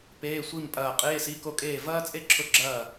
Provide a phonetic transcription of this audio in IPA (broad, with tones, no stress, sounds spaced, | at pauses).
p eː˧˥˧ sʷ i˥˨ m pʼ ɐː˥˨ qʼ eː˧˥˧ s i˧˥˧ k o˥˨ kʼ eː˥˨ v ɐː˥ t͡sʼ e˥ ǁʰ ʊ˥˨ ɡ͡ǁ ɐː˥˨